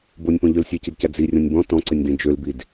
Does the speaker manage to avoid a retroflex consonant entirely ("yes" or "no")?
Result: yes